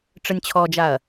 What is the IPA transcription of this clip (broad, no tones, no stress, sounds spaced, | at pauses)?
ʈ͡ʂ ə nʲ t͡ɕʰ ɔ d͡ʒ a ɐ̯